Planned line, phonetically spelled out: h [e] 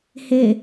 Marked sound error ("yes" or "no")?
no